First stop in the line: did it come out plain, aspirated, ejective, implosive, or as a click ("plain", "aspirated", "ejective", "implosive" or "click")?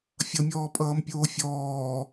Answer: ejective